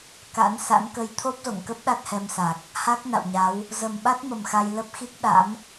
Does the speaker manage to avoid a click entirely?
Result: yes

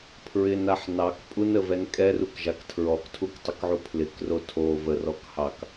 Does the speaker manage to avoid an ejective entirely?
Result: no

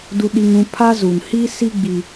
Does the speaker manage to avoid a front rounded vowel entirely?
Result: yes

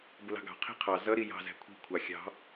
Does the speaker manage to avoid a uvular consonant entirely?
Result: no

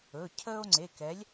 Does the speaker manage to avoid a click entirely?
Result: no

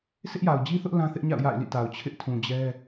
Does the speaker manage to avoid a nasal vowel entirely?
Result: no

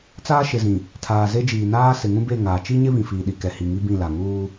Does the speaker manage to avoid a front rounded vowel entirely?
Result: yes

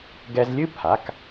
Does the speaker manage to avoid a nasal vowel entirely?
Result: yes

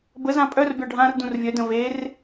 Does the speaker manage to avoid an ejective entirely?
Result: no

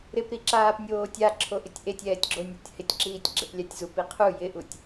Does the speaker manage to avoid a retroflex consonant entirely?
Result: yes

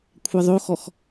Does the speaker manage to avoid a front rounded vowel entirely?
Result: yes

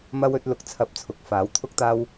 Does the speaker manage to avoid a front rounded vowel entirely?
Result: yes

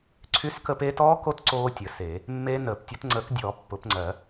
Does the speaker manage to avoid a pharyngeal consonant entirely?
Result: yes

